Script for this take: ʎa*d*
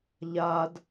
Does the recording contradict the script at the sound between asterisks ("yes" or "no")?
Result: no